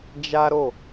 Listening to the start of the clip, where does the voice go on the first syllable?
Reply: high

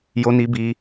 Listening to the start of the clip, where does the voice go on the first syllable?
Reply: high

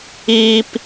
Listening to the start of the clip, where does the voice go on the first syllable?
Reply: high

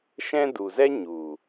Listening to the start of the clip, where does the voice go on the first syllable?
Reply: high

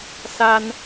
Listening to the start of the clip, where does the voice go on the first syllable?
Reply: high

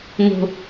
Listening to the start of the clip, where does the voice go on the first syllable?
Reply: low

